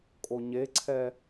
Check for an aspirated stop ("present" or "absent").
present